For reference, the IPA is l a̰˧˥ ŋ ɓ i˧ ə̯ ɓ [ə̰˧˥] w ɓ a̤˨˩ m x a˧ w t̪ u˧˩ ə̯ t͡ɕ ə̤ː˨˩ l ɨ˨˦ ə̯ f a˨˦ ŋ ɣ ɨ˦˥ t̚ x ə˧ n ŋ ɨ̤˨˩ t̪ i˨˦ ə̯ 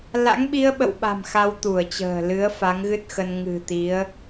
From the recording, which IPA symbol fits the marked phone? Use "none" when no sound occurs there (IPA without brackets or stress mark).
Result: ə̰˧˨